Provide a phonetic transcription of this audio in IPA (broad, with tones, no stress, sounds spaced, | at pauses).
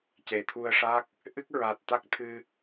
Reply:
c e˨˩ t̪ʰ u˧ ə̯ ʂ a˦˥ k̚ | ʔ ɨ˦˥ k̚ ɹ a˨˩ t̚ t̪ a˦˥ k̚ t̪ʰ ɨ˧